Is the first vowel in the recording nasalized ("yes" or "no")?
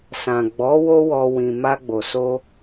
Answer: yes